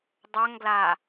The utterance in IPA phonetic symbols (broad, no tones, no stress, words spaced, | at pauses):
dˤœŋɡla